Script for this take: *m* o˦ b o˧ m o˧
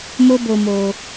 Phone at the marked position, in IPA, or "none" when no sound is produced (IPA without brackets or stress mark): m